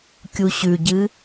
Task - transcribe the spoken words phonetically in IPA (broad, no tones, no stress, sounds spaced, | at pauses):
kʲ u ɕ ʉ ɟ ɨ